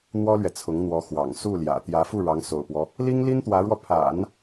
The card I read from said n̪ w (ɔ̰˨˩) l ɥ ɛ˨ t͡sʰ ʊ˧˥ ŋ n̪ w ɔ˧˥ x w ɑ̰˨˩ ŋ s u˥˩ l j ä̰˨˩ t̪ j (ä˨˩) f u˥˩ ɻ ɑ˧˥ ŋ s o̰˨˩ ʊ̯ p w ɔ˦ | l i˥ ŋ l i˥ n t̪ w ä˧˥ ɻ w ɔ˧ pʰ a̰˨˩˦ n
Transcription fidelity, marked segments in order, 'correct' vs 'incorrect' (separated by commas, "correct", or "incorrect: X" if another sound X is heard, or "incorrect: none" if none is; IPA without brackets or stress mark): incorrect: ɔ˥, incorrect: ä˧˥